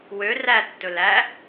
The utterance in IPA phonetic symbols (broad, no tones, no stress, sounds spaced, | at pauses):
w ø r æ tː ɵ l æ